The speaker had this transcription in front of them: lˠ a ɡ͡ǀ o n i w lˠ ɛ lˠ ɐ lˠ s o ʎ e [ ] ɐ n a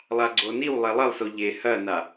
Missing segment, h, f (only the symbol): h